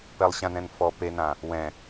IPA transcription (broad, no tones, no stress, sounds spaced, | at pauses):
p ɛ lˠ ɕ ã n ɛ̃ n f ɔ p e n ã | w ɛ̃